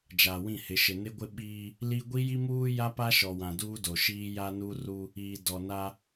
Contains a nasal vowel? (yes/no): yes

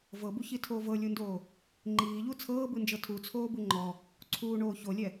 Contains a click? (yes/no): yes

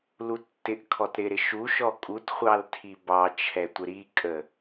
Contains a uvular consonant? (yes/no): yes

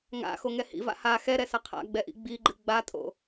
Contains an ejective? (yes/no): yes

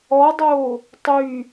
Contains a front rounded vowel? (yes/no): yes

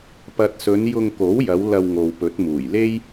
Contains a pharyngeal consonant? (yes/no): no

